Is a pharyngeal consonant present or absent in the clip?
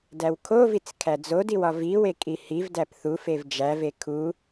absent